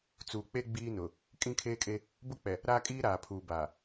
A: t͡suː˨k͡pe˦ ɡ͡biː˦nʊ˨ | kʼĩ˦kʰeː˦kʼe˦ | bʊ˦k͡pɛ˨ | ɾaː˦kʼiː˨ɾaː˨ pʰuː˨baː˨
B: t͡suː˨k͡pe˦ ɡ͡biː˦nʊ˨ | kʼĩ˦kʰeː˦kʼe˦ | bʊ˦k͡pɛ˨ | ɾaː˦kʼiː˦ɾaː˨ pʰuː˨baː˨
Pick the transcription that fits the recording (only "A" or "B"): B